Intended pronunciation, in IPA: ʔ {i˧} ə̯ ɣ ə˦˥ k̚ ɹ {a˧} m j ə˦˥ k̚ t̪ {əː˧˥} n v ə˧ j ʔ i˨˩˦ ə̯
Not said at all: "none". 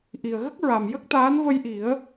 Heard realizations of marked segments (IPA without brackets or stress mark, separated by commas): i˨˩, a˨˩, aː˧˥